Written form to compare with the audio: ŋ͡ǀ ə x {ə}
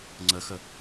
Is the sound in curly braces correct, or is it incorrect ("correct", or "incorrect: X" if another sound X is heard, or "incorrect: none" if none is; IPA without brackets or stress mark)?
correct